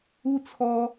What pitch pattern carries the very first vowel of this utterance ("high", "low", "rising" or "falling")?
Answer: high